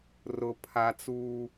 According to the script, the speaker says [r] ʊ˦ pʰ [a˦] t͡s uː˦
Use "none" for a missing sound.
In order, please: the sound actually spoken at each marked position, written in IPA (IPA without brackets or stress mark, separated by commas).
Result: r, a˦